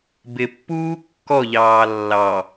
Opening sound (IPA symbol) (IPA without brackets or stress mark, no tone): b